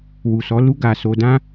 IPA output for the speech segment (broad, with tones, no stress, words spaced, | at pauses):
wu˨sɔ˨˦lu˦ ɡa˧ so˧dã˦